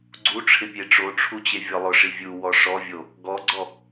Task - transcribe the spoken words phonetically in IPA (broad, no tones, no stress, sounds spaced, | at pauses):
ɡ͡ǀ u ʈ͡ʂʰ ɪ pʲ e ʈ͡ʂ o ʈ͡ʂʰ u t͡ɕ e vʲ ɔ lˠ ʊ ʂ i vʲ u w ɔ ʂ ɔ vʲ o | ɡ ɔ ɡ͡ǀ ɔ